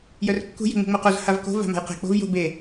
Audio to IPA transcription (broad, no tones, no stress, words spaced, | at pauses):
jœrkːṳ je̤ŋ͡mṳŋ͡moqoz havko̤ va̤ma̤jqe̤ k͡po̤vjo̤ be